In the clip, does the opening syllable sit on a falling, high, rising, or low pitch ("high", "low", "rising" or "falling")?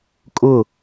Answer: falling